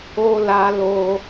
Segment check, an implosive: absent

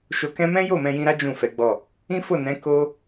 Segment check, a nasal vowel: present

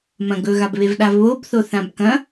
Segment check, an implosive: present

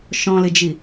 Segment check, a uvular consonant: absent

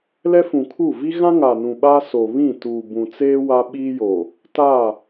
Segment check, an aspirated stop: present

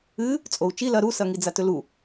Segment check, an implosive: absent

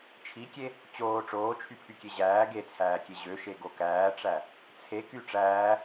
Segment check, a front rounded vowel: present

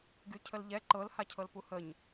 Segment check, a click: present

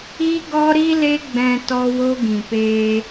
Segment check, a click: absent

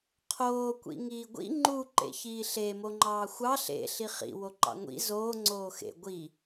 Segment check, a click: present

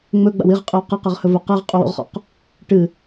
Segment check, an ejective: present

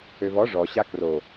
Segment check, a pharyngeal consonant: absent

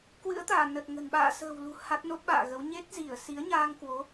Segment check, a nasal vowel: absent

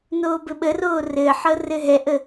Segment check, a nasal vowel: absent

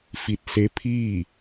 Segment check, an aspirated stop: present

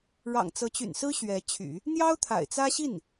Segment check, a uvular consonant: absent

